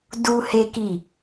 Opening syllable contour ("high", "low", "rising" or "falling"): high